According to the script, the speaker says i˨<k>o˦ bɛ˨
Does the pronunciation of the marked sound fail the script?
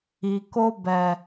no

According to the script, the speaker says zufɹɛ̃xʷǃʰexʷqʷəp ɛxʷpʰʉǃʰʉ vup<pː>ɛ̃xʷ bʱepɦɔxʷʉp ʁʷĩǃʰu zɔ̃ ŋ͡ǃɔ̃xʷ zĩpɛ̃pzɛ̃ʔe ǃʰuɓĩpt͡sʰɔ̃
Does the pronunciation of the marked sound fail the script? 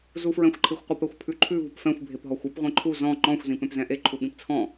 yes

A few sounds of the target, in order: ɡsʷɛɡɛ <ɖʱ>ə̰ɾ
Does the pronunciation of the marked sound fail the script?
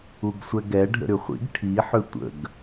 no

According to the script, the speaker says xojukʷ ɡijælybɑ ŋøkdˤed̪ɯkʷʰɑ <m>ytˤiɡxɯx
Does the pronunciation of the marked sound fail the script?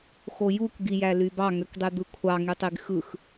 yes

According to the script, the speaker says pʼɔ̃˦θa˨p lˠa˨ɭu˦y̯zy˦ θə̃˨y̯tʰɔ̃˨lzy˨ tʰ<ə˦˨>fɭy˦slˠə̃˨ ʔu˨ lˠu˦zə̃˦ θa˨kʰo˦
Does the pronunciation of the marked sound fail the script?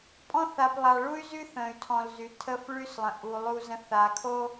no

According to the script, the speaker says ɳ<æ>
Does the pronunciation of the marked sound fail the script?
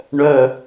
yes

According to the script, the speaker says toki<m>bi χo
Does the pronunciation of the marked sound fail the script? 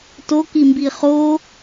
no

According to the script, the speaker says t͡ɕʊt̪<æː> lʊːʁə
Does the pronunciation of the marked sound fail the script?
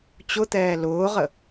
yes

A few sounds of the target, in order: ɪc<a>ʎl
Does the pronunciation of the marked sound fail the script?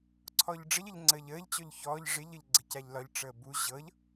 no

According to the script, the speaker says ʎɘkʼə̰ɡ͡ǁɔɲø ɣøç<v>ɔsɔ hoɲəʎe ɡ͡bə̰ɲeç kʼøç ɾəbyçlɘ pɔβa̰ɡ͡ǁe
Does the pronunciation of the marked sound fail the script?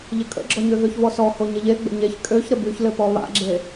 no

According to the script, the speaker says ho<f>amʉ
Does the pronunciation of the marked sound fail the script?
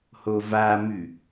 yes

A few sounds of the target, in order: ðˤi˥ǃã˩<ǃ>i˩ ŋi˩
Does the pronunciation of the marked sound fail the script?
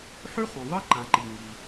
no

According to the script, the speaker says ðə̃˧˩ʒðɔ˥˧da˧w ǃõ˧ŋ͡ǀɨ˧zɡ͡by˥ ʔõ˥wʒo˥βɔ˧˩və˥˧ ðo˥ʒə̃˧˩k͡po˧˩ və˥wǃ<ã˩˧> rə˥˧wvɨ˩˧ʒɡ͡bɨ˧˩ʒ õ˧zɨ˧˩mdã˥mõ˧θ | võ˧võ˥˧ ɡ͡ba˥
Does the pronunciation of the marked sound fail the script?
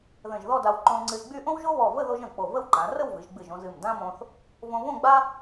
no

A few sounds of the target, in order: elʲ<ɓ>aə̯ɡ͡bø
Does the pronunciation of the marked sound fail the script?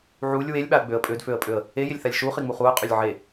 no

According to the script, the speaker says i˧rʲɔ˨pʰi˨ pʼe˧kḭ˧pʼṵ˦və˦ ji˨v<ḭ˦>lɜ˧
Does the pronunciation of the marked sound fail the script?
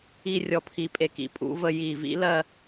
no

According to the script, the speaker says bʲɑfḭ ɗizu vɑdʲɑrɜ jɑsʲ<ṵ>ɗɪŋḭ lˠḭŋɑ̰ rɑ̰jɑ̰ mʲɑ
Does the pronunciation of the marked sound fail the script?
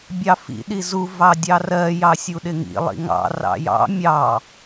yes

